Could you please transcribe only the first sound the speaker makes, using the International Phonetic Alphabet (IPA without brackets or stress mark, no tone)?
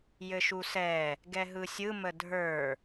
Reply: j